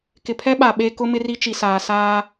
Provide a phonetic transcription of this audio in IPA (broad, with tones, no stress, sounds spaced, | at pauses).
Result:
k ɪ˨ pʰ ɛ˦ ɓ a˨ ɓ e˦ k ʊ˦ m ɪ˦ r i˦ t͡ʃ i˨ s aː˨ s aː˦